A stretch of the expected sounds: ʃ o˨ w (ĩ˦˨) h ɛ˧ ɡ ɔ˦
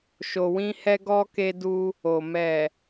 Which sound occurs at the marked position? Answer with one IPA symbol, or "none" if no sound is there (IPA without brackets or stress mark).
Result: ĩ˧